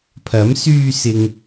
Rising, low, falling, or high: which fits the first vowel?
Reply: rising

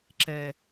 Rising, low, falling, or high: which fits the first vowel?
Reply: low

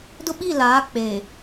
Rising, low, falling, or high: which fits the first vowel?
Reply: high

